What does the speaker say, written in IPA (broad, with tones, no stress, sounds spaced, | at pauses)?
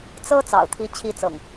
t͡s ɤ˦ t͡s ɑ̰˨˩ ʊ̯ t̪ʰ i˨˦ t͡ɕʰ i˨˦ t͡s ɤ̰˨˩ ŋ